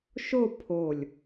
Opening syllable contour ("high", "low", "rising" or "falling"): falling